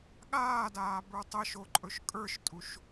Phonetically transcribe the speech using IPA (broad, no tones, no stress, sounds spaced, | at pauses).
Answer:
ɠ aː d aː b ə˞ tˤ ə ʃ o ǃʼ ɵ ʃ kʼ ə˞ ʃ tʼ u ʃ